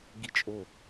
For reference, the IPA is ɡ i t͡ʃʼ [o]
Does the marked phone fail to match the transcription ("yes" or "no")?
no